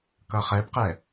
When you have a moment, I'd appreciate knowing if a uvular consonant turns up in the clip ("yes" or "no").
yes